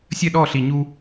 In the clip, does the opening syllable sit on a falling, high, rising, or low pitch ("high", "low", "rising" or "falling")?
falling